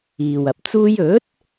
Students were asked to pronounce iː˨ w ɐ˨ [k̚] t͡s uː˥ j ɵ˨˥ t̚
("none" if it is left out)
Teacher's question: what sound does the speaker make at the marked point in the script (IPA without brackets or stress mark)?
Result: p̚